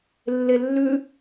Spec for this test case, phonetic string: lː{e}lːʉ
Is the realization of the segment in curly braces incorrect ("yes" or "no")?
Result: no